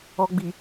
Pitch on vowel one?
low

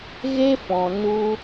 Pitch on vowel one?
high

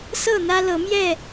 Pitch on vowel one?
falling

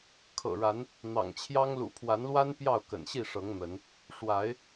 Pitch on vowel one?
low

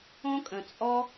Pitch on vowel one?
high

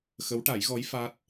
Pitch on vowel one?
rising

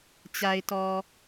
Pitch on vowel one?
low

